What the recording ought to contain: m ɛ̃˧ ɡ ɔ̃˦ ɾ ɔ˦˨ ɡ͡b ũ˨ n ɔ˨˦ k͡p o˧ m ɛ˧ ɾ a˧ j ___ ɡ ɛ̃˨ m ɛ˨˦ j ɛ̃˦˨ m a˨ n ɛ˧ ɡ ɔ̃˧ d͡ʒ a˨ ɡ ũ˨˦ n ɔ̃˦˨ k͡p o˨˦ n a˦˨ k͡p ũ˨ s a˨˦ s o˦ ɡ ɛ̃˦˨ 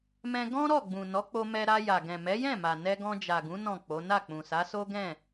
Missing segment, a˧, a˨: a˨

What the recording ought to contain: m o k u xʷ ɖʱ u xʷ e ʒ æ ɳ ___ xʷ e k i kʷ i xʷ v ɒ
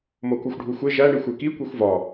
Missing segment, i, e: i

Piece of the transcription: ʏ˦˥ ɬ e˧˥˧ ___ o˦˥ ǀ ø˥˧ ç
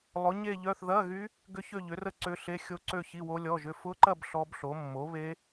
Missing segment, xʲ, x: xʲ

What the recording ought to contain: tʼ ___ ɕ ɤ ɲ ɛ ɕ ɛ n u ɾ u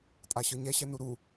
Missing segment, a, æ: a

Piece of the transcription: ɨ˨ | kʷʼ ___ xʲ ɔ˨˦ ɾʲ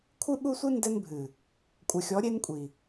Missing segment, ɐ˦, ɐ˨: ɐ˨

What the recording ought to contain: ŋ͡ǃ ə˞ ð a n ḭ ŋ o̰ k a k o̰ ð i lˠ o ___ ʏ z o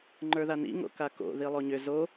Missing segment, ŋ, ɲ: ɲ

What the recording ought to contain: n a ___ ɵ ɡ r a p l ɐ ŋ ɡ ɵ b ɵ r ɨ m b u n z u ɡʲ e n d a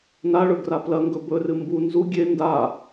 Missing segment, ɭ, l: ɭ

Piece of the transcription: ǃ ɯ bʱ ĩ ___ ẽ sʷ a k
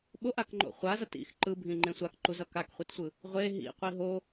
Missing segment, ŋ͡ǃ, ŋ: ŋ͡ǃ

